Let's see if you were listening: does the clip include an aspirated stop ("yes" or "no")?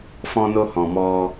no